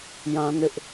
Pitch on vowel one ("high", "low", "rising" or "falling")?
high